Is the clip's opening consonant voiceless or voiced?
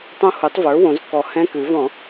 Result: voiceless